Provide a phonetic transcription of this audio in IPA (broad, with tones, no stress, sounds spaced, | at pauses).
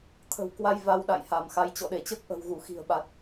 t̪ʰ ə̤˨˩ w k w a˧ j v a˧ w ɗ a̰˧˨ j h a˧˩ m x a˨˦ j t͡ɕ ɔ̰˧˨ ɗ e˧˩ t͡ɕ əː˦˥ k̚ ʔ ə̤˨˩ w ɣ u˧˩ x i̤˨˩ ə̯ ɓ a˨˩ t̚